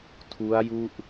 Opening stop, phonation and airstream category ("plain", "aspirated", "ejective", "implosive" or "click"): aspirated